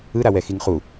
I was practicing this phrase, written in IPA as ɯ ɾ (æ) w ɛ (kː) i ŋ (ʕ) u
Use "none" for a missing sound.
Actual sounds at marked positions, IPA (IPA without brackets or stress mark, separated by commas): a, x, χ